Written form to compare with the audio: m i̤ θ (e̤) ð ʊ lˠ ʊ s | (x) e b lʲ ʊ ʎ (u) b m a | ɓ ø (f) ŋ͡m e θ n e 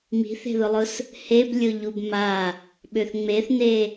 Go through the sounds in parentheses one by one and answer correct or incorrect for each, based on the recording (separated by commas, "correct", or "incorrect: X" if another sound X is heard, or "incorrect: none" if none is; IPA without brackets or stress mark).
correct, incorrect: h, correct, incorrect: θ